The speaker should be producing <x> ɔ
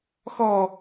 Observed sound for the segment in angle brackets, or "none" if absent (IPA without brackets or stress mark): x